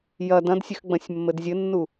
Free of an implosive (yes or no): yes